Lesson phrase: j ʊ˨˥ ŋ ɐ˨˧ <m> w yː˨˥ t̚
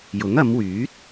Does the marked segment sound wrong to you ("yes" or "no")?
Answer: no